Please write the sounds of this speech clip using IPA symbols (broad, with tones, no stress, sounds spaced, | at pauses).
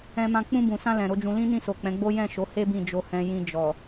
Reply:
ɛ̃˧ m ã˧ k͡p ũ˧ b ũ˨ s ã˧ l ɛ̃˨ ɾ o˨˦ d͡ʒ ũ˧ l ĩ˦ n ĩ˦˨ s o˨ k͡p ɛ̃˨˦ ɡ͡b o˦ j ɛ̃˦˨ ʃ o˨˦ h e˦ b ĩ˦˨ d͡ʒ o˧ h ɛ̃˧ j ĩ˧ d͡ʒ ɔ˨